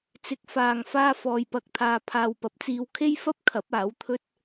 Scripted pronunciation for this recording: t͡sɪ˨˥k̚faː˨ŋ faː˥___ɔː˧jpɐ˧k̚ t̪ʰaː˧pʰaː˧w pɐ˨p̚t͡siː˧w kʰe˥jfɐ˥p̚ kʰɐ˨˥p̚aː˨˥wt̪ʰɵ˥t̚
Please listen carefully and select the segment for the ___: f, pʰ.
f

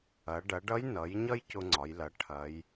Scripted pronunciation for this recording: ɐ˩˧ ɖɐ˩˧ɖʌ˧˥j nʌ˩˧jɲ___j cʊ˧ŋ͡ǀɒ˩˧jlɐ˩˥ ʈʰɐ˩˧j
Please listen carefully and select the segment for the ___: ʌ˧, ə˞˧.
ʌ˧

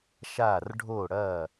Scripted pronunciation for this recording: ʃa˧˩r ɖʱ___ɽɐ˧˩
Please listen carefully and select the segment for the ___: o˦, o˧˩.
o˧˩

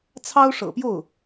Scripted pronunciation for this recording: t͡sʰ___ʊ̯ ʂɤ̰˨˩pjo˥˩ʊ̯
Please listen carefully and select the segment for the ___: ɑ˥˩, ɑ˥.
ɑ˥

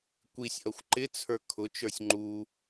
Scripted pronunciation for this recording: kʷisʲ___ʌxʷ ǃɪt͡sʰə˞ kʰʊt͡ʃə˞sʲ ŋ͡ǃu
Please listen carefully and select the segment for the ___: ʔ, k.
ʔ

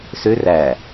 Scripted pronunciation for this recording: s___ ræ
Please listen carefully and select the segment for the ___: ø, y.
ø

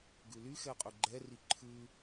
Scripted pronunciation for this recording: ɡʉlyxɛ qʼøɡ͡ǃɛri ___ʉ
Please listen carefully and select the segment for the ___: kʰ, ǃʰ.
ǃʰ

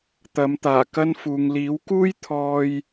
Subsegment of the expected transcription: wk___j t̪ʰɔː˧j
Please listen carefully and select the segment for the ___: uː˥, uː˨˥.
uː˥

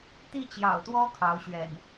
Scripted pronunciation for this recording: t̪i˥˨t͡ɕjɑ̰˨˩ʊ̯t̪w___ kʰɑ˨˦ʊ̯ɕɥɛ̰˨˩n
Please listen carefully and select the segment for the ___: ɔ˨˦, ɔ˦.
ɔ˦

